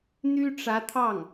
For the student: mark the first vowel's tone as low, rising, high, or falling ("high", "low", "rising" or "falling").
high